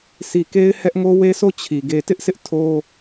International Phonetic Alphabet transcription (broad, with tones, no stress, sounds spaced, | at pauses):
s i˨ k e˦ ɪ̯ h ɛ˦ ʔ ŋ o˦ w e˦ s o˦˨ t͡ɕʰ i˨ ɡ e˨ t ɪ˦ ʔ sʰ ɪ˦ ʔ tʰ o˦